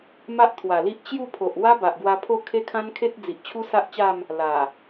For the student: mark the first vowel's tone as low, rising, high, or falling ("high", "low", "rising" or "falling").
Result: high